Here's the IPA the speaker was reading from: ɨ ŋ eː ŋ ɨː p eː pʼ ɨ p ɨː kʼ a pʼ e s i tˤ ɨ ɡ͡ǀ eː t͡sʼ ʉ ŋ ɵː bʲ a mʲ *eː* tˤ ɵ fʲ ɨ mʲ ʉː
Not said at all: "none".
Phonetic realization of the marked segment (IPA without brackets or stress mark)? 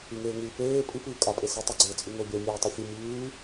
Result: eː